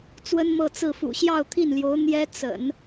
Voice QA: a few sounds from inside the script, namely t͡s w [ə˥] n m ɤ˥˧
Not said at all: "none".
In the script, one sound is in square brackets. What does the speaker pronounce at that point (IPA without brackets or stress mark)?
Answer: ə˥